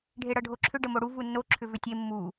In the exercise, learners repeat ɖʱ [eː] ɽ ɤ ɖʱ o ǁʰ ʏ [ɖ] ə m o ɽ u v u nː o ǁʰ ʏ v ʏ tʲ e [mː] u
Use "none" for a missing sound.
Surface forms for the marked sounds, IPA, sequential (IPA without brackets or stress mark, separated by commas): e, ɖ, mː